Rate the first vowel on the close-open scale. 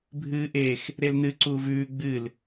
close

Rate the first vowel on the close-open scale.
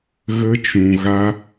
mid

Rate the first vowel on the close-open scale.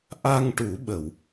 open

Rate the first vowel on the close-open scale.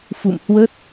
close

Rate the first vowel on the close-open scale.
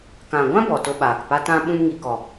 open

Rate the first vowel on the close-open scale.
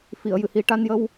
close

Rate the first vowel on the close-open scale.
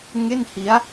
mid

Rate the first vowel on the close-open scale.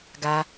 open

